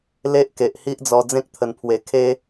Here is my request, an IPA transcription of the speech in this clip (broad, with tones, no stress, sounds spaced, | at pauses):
l e˦ ʔ k e˨ ʔ h i˦ ʔ d͡z ɔ˧ d͡z ẽ˦ k̚ t̪ʰ ə˨˩ n pʰ w e˨˩ kʰ e˦